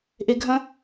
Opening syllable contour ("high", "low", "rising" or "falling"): low